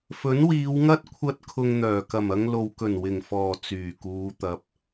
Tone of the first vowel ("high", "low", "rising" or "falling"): rising